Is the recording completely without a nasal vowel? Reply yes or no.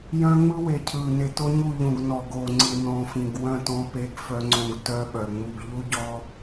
no